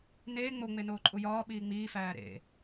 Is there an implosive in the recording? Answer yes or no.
yes